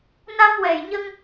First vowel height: low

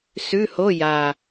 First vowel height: high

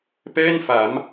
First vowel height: mid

